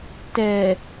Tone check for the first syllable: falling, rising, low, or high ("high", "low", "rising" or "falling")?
low